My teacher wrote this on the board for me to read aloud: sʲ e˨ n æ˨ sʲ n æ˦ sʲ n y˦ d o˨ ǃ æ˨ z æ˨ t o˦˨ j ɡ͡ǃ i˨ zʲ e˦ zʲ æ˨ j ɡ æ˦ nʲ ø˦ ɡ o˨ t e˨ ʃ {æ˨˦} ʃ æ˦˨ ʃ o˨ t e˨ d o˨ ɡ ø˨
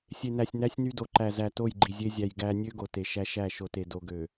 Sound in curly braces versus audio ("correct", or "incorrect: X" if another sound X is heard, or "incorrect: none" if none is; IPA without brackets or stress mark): incorrect: æ˦